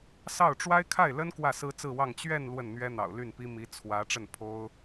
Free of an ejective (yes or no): yes